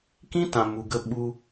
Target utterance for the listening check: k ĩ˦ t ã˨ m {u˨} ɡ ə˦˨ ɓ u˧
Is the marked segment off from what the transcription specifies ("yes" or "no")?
no